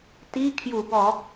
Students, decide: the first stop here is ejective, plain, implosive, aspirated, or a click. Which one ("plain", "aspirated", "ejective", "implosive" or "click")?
plain